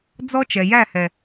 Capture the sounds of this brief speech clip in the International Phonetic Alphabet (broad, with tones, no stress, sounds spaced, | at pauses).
d͡z ɔ˦ t͡ʃ ɛ˨ j æ˦˨ h ɛ˨